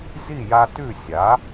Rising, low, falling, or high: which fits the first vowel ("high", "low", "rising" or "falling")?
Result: falling